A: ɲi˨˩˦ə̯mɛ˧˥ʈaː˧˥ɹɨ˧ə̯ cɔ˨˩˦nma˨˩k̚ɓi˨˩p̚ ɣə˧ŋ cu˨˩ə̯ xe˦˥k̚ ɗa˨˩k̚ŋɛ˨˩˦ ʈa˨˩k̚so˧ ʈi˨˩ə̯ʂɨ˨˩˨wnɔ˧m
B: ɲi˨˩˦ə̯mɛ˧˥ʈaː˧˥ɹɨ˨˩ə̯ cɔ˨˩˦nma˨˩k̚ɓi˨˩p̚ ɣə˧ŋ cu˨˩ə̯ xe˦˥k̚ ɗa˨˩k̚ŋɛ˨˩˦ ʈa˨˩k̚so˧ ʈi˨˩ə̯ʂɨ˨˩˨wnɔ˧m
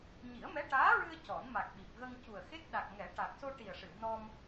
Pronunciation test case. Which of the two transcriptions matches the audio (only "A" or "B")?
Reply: A